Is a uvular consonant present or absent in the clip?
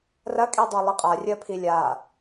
present